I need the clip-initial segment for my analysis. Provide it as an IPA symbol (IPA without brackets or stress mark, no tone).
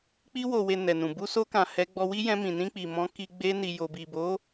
k͡p